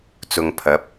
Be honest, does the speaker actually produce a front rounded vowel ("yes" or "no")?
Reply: no